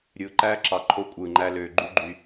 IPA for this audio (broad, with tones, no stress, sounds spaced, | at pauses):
ɾʲ ɯː˨ ǃ æː˦ ǁ ɑ˨ ǃʰ o˦ kʷʼ ɯː˨ ŋ͡ǃ æ˦ l øː˨ ɡ͡ǃ y˦ ɡ͡ǃ y˨